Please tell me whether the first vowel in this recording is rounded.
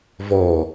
yes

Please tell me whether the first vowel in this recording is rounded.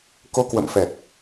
yes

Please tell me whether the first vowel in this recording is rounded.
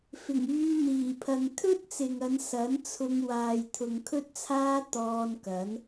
no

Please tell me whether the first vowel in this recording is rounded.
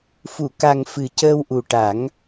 yes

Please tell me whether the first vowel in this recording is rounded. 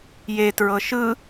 no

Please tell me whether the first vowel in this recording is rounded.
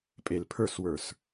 no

